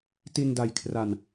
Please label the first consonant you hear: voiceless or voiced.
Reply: voiceless